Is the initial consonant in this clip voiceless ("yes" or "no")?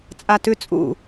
yes